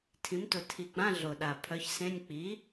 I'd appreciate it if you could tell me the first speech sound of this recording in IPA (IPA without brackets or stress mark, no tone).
tʰ